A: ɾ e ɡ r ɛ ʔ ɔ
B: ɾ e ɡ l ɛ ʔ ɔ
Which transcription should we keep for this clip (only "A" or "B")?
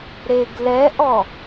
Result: B